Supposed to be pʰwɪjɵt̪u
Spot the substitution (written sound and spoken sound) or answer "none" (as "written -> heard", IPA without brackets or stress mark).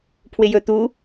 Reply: none